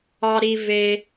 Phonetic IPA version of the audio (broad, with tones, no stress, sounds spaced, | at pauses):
ɑ˩ ɾ i˩ v e˩